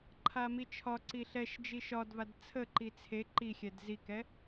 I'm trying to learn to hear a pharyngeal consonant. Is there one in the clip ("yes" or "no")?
no